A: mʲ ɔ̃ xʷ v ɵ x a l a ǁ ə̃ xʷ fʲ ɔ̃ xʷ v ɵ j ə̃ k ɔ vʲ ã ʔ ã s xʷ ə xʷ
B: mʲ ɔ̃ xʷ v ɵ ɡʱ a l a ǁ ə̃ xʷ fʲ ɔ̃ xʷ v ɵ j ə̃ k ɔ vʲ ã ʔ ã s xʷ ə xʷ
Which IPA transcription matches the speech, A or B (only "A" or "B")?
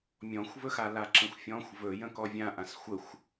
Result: A